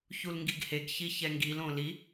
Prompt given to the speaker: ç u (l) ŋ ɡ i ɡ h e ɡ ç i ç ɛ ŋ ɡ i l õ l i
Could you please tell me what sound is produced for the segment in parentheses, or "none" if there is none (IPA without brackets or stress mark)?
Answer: l